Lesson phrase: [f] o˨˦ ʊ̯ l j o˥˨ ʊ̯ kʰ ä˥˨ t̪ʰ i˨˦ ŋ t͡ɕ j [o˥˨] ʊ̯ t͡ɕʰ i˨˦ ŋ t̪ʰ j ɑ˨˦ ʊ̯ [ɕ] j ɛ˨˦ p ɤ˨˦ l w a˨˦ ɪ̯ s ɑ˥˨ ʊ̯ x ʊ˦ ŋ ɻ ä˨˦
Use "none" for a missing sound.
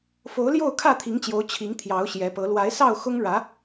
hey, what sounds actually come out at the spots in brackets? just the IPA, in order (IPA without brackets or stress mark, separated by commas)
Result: f, o˨˦, ɕ